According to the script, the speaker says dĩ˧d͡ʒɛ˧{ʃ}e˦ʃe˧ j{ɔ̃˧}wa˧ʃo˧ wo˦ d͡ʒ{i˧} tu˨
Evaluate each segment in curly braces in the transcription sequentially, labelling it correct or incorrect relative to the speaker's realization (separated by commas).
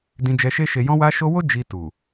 correct, correct, correct